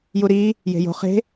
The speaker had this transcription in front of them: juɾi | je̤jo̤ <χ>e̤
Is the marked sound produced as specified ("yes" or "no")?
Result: yes